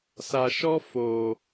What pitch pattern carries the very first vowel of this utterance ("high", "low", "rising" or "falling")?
low